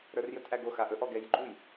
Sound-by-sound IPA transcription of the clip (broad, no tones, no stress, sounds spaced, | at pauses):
ɾ ə˞ r j ɵ t ʔ æ ɡ o x a ʔ ɵ ʔ ɔ ɡ ɛ j ɡ͡ǃ u j